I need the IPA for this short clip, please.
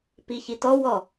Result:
p i ç i t ɔ w ɔ

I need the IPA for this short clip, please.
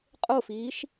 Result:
qʼ o f iː ʃ

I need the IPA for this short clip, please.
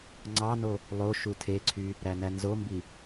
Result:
ŋ͡ǀ ɑ n o | lˠ o ʃ u tʰ e ǀʰ y | ɾ æ n æ n z o m b i

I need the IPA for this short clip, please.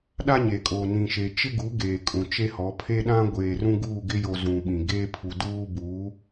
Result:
ɗ a˦ ɲ e˨ kʼ oː˨ n ĩ˨ ʃ e˨ t͡ʃ ɪ˦ ɡ u˨˦ ɡ eː˨ kʼ ũ˨ t͡ʃ e˦ h ɔ˨˦ pʰ e˦ ɗ ã˦ ɡʷ eː˨ r ũ˦ ɡ uː˦˨ ɡ ɪ˦ j o˨ z ũ˨ ɓ ĩ˨ ɡ eː˦ pʰ u˨ d uː˦ b uː˨˦

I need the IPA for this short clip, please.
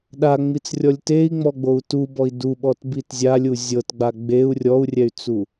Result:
ɗ a ŋ͡m i t͡s rʲ ɔ lʲ t e i̯ ŋ͡m ɔ ɡ͡b o u̯ t u b ɔ i̯ d u ɓ ɔ t b i t zʲ a lʲ u zʲ ɤ t ɡ͡b a ɡ͡b e u̯ rʲ ɔ u̯ rʲ ɛ y̯ t͡s u

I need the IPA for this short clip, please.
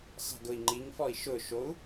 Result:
sˤ i̤ ɡ ʊ i̯ ŋ͡ǃ i ŋ f ɔ i̯ ʃ ʊ ʃ o u̯

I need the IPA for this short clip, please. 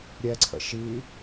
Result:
ɾʲ ɛ ǀʰ ə̰ ʃ i

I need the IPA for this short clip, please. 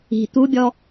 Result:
i̤ t̪ u bʲ ɔ

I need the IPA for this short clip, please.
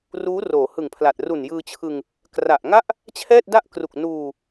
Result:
r uː˦˥ r oː˩˦ h ɯ˨˩ ŋ pʰ l a˨˩ t̚ r u˨˩ n j ɯː˧ t͡ɕʰ ɯ˧ ŋ | k r a˨˩ ʔ ŋ a˥˩ ʔ | t͡ɕʰ ɛː˥˩ t̚ d a˥˩ ʔ k r u˨˩ k̚ n uː˧

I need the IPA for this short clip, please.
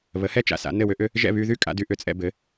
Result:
β ə˩˥ h ɛ˥ t͡ʃ a̰˩ s a̰˩˥ n ɘ˥˩ w ʏ˥ ʔ ʏ˥ | ʒ ɛ̰˥˩ β y˧ ð y˥˩ kʼ a̰˧ d y˧ ʔ ʏ˩˥ t͡sʼ ɛ̰˧ b ɘ˩˥

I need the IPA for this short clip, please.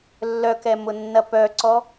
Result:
lː œ k ɛ m ʊ nː ɐ p œ ǀ ɔ

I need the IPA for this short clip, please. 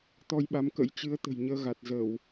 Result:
t̪ ɔ˧ j ɓ a˨˦ m k ə̰˧˥ j t͡ɕ ɨ˨˦ ə̯ t̪ ə̤˨˩ j ɲ əː˧ ɣ a˨˩ t̚ z ə˧˩˨ w

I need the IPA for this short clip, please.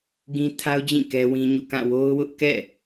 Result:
ɡ ĩ˦ tʰ a˦ ʊ̯ d͡ʑ ĩ˦˨ k ɛ˦ w ĩ˦ ɲ ṵ˦˨ k ã˦˨ w o˦ ʊ̯ w ʊ˦ ʔ k ɛ̰˦˨

